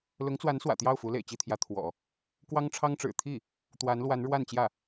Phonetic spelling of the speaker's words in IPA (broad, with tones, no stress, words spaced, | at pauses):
lʊ˧˥ŋt͡swa˧˥nswä̰˨˩ t̪jɑ˥˩ʊ̯ fu˧˥lḛ˨˩ɪ̯t͡ɕi˥˩t̪ʰjä˧˥ t̪ʰwɔ̰˨˩˦ | kwɑ˥ŋʈ͡ʂʰɑ˥ŋʈ͡ʂɻ̩˨˩ t̪ʰi˥˩ | t̪wa˧˥nlwa˧˥n ɻwa˥˧nt͡ɕjä˥˩